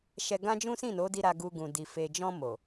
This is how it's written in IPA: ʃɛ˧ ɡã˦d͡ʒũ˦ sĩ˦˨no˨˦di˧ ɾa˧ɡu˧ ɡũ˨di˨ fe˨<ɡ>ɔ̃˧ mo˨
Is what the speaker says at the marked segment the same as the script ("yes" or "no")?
no